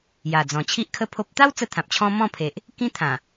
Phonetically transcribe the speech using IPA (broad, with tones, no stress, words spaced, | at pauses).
ja˨˩d͡zɔ̃˨˩ t͡ɕʰi˦ʔkʰə˥˧pʰo˦p̚ t̪a˦w t͡sə˦t̪ʰã˨p̚t͡ɕʰɔ̃˦ mɔ̃˥˧pʰe˨ʔ | kĩ˦t̪ʰã˨˩